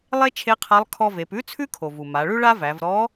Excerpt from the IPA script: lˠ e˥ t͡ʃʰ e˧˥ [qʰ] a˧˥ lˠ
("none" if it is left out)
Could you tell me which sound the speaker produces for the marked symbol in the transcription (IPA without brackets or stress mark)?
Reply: qʰ